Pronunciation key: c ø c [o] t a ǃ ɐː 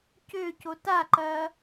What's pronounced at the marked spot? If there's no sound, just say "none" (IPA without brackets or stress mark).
o